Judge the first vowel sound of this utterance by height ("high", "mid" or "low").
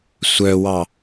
mid